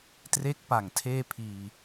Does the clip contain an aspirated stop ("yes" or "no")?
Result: yes